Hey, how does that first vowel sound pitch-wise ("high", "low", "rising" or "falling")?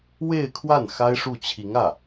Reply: falling